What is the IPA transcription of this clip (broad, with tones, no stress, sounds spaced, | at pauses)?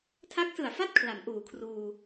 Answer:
tʰ a˦˥ k̚ s ɯ˨˩ a̯ f a˥˩ t̚ kʰ l a˩˦ m ʔ uː˨˩ kʰ r uː˧